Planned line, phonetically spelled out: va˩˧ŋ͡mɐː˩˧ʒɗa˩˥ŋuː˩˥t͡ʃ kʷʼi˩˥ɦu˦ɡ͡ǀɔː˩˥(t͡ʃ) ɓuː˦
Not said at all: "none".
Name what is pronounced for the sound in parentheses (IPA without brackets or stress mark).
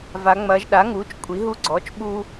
t͡ʃ